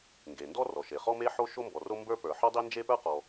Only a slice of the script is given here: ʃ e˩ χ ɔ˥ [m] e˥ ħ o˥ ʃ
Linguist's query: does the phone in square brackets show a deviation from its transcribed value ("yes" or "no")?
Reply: no